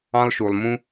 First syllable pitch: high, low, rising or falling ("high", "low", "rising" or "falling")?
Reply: high